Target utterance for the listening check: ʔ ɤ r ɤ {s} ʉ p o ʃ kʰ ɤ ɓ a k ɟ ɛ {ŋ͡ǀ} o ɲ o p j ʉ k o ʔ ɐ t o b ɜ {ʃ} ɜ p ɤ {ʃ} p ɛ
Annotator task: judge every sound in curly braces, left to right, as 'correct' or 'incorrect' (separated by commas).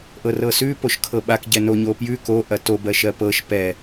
correct, incorrect, correct, correct